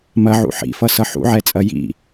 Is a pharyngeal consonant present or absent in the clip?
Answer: present